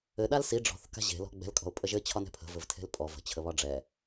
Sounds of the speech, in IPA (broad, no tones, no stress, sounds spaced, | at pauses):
ɘ ɗ a l s i ɖ͡ʐ ɔ̤ θ k a̤ ʑ e̤ l ɔ̤ ɡ͡b ɛ̤ l kʼ ɔ̤ ʊ̯ pʼ ə ʒ ɘ t͡ɕʰ ɒ n ɛ̤ pʰ ə̤ v ɘ v tʰ e̤ l pʼ ɔ v ə̤ t͡ɕʰ ə β ɒ ɖ͡ʐ ɛ